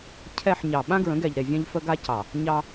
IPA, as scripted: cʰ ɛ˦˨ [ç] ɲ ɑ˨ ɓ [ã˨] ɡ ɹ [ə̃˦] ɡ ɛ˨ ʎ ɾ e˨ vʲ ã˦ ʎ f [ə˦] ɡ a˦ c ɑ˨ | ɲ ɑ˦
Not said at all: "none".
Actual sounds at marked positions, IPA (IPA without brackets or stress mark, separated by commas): ħ, ã˦, ə̃˨˦, ə˦